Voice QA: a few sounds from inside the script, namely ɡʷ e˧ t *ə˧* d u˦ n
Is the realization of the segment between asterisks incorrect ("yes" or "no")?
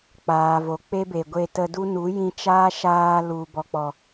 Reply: no